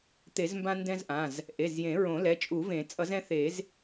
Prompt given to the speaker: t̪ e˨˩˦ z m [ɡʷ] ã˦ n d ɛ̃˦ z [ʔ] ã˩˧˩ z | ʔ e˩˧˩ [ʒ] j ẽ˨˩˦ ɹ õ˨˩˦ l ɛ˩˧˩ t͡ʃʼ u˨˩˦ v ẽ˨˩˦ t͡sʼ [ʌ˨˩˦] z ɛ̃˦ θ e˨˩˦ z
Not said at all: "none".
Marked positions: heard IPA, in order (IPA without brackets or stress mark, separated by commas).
b, ʔ, z, ʌ˨˩˦